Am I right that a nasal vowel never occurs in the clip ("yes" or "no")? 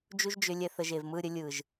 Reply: yes